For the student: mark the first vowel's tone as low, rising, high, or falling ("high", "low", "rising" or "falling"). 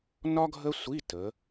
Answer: high